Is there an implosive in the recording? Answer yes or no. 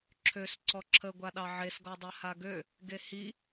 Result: yes